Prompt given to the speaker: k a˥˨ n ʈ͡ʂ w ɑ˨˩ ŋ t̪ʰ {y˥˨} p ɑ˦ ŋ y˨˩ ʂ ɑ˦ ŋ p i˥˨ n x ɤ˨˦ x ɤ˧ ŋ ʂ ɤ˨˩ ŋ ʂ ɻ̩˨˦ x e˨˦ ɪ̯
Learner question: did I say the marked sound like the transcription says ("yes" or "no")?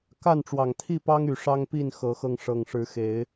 no